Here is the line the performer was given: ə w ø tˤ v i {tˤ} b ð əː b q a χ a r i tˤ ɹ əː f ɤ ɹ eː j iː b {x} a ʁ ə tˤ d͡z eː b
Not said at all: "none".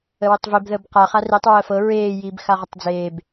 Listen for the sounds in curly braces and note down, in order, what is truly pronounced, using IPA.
none, x

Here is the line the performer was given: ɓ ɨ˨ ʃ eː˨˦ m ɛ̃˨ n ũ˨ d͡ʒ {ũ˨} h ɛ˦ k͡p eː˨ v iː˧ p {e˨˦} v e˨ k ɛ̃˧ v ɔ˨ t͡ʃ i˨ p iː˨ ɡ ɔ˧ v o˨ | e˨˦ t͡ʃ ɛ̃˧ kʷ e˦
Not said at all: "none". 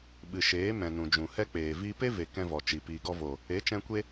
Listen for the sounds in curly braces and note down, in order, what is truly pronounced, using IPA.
ũ˨, e˦

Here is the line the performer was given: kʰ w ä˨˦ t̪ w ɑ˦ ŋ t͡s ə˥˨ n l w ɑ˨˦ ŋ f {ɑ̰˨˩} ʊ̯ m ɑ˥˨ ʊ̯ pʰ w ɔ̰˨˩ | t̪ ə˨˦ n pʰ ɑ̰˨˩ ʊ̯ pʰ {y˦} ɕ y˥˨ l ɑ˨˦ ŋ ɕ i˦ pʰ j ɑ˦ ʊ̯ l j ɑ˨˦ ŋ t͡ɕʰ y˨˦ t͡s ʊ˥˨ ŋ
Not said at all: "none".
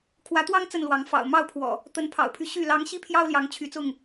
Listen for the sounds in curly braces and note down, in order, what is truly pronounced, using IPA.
ɑ̰˨˩, y˦

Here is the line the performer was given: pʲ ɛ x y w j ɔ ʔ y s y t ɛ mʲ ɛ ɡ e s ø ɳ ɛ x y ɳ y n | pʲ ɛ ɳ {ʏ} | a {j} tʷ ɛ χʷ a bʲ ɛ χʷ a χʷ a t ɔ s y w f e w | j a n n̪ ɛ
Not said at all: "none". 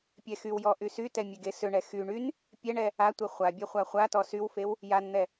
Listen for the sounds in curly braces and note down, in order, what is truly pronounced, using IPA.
ɛ, none

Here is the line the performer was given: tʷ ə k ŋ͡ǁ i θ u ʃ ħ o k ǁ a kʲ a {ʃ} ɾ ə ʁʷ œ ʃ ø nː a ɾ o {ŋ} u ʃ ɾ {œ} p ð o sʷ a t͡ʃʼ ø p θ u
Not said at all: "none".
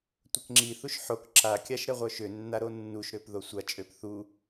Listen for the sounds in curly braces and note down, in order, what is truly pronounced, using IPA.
ʃ, nː, ø

